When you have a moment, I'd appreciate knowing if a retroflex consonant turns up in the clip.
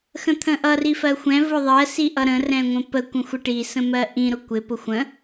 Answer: yes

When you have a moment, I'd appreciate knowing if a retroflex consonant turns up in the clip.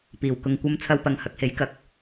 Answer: no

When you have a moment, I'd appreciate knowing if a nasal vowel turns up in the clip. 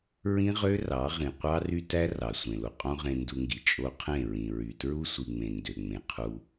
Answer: yes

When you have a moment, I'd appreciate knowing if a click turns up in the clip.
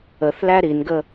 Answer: no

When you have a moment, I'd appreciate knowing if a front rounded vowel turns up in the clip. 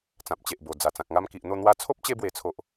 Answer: no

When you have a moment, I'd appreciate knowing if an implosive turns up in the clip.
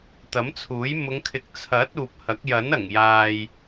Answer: no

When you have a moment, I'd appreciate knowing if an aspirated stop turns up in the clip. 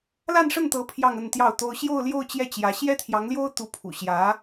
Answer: yes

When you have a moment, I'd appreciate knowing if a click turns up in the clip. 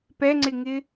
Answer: yes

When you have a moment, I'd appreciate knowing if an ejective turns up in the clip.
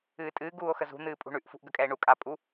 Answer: yes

